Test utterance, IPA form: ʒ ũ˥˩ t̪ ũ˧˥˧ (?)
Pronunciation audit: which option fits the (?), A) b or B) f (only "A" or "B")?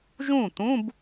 A